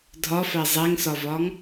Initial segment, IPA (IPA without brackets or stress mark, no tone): dʱ